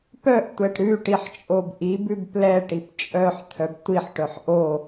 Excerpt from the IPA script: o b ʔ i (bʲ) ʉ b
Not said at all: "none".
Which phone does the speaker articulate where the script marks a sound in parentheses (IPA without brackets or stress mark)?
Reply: b